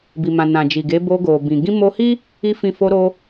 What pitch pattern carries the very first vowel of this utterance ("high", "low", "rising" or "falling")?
low